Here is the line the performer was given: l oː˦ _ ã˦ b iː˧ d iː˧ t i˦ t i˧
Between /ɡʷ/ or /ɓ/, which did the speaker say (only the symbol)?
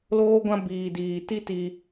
ɡʷ